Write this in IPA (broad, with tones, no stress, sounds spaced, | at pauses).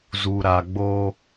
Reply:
z u˨ ɾ a˨ ɡ͡b o˦